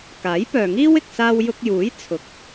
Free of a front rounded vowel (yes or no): no